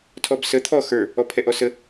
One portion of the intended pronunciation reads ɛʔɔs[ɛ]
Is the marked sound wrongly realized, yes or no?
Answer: yes